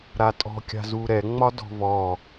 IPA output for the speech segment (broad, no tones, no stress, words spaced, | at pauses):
ɾatʼɔ̤ kʲa̤zuːɾɛ ŋ͡mɒdɔ̤vɔː